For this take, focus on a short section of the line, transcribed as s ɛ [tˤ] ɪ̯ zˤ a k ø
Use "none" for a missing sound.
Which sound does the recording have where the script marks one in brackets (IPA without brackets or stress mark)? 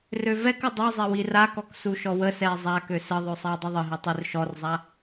none